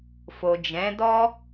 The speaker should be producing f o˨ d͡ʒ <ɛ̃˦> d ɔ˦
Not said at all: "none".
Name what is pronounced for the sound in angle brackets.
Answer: ɛ̃˨˦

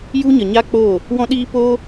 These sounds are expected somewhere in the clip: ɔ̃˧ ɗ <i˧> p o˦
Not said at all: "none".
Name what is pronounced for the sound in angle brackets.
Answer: iː˧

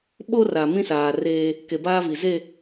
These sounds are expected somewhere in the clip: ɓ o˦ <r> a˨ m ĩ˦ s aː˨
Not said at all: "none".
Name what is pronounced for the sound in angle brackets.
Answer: r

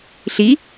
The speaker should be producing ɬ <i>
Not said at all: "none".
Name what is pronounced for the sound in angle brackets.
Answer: i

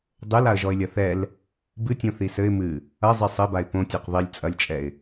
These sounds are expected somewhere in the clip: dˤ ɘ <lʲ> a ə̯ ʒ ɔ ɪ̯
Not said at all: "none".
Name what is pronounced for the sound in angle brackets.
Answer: l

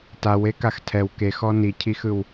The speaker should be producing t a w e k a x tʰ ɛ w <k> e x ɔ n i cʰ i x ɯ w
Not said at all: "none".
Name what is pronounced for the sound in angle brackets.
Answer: k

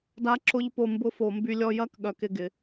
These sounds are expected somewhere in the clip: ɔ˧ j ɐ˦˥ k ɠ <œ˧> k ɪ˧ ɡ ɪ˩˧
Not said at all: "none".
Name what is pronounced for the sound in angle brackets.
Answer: œ˧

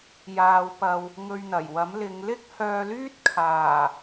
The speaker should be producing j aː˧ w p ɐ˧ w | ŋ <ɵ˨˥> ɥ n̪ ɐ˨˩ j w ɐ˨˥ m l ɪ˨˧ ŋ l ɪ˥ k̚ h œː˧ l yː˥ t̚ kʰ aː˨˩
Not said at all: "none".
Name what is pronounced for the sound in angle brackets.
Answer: ɵ˧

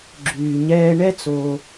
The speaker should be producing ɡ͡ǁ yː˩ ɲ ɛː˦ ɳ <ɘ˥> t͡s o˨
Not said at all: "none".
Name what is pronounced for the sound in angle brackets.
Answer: ɛ˥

